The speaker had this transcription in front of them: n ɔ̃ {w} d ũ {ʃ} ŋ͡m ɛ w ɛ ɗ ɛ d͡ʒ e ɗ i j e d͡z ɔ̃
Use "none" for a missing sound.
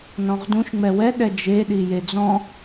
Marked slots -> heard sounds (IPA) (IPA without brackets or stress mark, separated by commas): ʁ, ʃ